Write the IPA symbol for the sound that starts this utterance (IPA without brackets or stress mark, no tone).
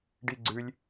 ɖ